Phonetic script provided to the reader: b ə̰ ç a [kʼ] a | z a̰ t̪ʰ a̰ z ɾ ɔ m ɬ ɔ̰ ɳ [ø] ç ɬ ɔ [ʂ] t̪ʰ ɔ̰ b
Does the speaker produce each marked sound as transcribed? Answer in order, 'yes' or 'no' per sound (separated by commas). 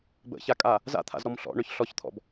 yes, yes, no